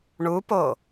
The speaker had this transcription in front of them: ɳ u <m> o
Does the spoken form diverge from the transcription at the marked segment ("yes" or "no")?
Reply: yes